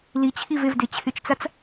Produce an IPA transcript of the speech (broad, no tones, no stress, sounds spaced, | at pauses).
l i t͡ɕʰ i v e v d e t͡ɕʰ ɪ t͡ʃ t͡s a t͡s